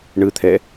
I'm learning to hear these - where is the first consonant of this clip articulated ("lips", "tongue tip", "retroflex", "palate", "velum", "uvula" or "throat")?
retroflex